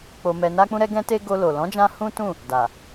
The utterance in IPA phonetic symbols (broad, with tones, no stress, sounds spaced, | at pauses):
k͡p o˧ m ɛ˧ n a˦ k͡p ũ˦ ɾ ɛ˦ ɡ ɛ̃˦ t e˦ ɡ o˧ l o˨ l ɔ̃˨˦ d͡ʒ ã˧ h ũ˦ t ũ˦˨ | d a˨